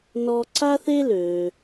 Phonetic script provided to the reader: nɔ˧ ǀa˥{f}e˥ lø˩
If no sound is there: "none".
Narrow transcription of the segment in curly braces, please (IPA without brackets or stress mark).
θ